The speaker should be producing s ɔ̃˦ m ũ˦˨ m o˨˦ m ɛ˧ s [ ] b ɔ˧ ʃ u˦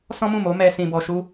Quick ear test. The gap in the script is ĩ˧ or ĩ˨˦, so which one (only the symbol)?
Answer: ĩ˧